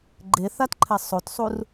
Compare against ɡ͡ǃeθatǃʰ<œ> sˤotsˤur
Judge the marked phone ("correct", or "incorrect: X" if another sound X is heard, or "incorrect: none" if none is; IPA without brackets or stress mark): incorrect: ɛ